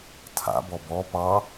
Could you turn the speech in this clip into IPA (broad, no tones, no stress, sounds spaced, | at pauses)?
tʰ a̰ b ɔ b ɔ p ɑ